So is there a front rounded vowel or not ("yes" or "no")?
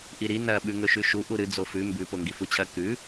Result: no